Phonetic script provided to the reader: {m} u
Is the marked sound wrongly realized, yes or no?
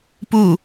yes